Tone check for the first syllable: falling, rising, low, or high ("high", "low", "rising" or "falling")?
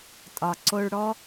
low